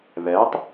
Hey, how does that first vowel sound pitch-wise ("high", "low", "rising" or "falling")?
rising